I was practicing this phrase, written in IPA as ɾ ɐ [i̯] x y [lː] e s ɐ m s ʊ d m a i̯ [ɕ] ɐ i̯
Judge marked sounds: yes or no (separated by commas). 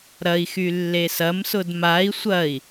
yes, yes, no